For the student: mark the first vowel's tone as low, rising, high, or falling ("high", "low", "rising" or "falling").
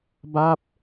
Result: falling